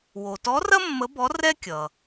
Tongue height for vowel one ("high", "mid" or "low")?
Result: mid